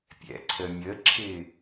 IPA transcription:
pʲ ɛ̰ ǀʰ ə mʲ ə ǁʰ ɪ

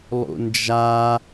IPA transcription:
lˠ ṵ n d͡ʒ a

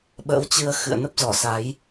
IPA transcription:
ɓ ə̰ː˧˥ w t͡ɕ ɨ˧ ə̯ x ɨ̰˧˨ ə̯ n ə˦˥ p̚ z ɔ˧˩ s a˨˦ j

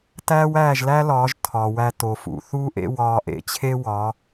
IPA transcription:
t æː˦ w æː˦˨ ʒ l æ˦ l ɒː˨˦ ʒ tʰ ɒː˨ w æ˧ t o˨ f ṵ˨ θ uː˦ ʔ ḛ˦ w ɒː˧ ʔ ḛ˧ t͡ɕʰ e˦ w ɒː˨˦

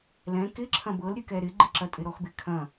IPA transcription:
l ɛ̃ k ɪ ǁʰ ɐ̃ b ɤ l ɾʲ ʉ k ɛ ɾ ɪ ɡ͡ǃ i ǁ ɐ tʼ ɪ ɾ ɔ x b ɪ kʰ ɐ̃

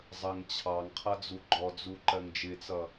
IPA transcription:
zˤ ə ŋ t͡ɕʰ ɑ ŋ qʰ ʌ d͡z u ɡ͡ǃ ɔ d͡z u ǃ ɜ ŋ d͡ʒ ɪ t͡s ʌ

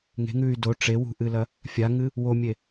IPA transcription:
ŋ e̤ ŋ ʉː y̯ d o ʈ͡ʂ e w ṳ ʔ ɨ l ɐ | fʲ a ŋ ɨ | w o mʲ e

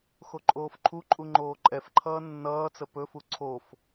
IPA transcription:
x o ǃʼ oː f ǃʰ u ǃʼ u ŋ͡ǃ oː ǃʼ ɛ f ǃʰ ʌː nː ʌː t͡s ə p ɵ f u ǀʰ o f

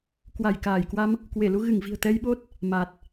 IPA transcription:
k w a˧˩ j k aː˧˩ j k w a˧ m | k w e˧˩ l u˧ ɣ ɨ˧˩ ŋ v i̤˨˩ ə̯ t̪ ɛ˧ j ɓ o˦˥ t̚ | m a˨˩ t̚

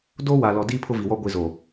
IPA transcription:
d oː˦ w a˨ l ɔ˨ d iː˦ pʰ ʊ˦ v i˨ w ɔ˦ ɡʷ i˨ z o˨

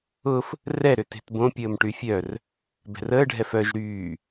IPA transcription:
ʊ f | r ɛ ɾ ʏ t e̤ t b õ pʲ əː m ʈ y fʲ œ r | b ɛ̤ r əː ɖʱ ɛ f œ ʒ ɾ yː

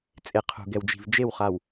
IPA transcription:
t͡sʼ e˨ qʰ ṳ˨ ɡ ɛ˨ w d͡ʒ i̤˨ v d͡ʒ e˦˨ w χ a˨ w

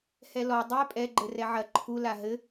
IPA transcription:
h ɛ l ɔ dˤ ɛ pʼ ɛ ɡ͡ǃ ɘ r ɛ ʕ ɐ ǃʰ u l a ɦ ɘ

